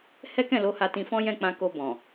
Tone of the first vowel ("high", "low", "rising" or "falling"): high